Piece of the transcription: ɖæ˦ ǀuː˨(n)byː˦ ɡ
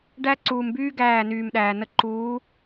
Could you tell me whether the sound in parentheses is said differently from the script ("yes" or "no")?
yes